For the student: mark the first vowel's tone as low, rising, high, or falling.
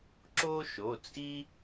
high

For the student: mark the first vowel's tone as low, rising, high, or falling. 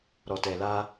low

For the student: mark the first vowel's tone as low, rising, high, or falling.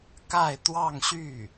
falling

